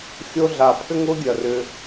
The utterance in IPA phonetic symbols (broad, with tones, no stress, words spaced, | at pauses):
xʲo˦ɮa˨pʰʏ˥ŋ ʊ˥ɡʲɐ˩rʏ˨